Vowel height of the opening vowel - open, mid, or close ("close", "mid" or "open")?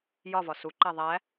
open